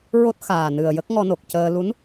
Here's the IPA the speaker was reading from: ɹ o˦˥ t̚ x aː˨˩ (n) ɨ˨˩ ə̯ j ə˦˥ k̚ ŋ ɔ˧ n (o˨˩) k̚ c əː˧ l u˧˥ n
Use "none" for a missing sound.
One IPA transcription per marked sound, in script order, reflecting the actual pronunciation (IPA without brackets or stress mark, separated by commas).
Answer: n, o˨˩